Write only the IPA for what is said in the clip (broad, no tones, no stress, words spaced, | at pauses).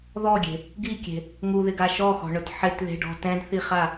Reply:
ðɔɡʲe̤ | ɡikʲe̤ | ŋuðɪɡa ʃɔxɔ̤ɳʊt ħɪtðe̤ɖɔ̤ tɛ̃dθiχa